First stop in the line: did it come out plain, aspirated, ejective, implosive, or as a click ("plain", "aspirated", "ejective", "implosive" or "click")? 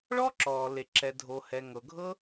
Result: click